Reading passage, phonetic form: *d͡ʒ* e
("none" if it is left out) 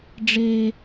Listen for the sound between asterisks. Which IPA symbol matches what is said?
ɖ͡ʐ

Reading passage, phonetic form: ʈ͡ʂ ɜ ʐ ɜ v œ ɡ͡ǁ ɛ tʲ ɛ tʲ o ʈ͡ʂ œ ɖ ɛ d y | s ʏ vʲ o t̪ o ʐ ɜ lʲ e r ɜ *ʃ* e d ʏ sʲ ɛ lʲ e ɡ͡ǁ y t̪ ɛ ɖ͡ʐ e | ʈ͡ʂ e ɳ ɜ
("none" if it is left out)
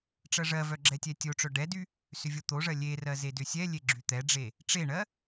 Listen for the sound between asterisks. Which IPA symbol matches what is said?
z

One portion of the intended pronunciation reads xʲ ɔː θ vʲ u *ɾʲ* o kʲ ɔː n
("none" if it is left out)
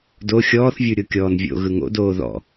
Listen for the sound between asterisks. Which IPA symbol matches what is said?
ɾʲ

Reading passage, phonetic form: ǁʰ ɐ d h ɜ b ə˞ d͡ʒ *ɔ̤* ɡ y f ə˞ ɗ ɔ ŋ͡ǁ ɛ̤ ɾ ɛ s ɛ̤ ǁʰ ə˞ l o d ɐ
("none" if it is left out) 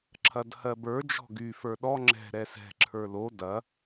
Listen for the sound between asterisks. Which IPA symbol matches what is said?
ɔ̤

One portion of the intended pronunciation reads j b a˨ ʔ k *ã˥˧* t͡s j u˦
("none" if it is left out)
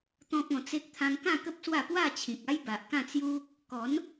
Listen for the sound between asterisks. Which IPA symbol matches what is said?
ã˥˧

